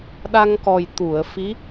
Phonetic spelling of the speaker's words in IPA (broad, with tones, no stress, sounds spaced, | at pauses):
ɗ a˧ ŋ k ɔ˨˩ j t̪ u˨˩˨ ə̯ f i˧˥